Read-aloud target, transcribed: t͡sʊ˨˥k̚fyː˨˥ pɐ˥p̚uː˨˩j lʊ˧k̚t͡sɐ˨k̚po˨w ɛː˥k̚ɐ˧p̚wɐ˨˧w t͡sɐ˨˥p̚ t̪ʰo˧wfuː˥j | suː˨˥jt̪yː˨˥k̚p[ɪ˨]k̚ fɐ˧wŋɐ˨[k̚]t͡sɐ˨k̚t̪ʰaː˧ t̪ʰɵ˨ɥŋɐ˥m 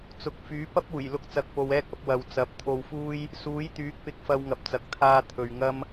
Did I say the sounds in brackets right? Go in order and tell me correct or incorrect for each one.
correct, incorrect: p̚

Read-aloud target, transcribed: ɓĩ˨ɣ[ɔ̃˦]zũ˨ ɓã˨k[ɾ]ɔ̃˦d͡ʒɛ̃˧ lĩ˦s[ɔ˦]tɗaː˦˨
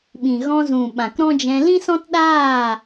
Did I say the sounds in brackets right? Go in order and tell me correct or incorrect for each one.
incorrect: ɔ̃˧, correct, incorrect: ɔ̃˦

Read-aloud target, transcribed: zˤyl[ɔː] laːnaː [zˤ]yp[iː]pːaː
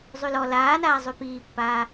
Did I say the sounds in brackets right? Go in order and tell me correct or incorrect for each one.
incorrect: ɔ, correct, correct

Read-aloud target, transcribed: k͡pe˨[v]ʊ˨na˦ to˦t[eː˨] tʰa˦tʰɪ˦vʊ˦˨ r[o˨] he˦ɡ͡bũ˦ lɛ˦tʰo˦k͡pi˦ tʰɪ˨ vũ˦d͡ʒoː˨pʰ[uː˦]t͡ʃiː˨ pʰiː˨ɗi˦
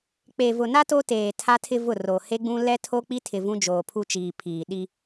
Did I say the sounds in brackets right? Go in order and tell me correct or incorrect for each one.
correct, correct, correct, incorrect: u˦

